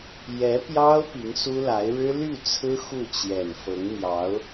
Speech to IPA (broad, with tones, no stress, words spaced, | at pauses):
jɛ˧˥pjɑ˥ʊ̯ pi˧˥ŋsu˥la˧˥ɪ̯ ɻɻ̩˥ly˥˩t͡sʰɹ̩˥ xu˥˩t͡ɕjɛ˨˩n fɤ˧˥ŋn̪jɑ˧˥ʊ̯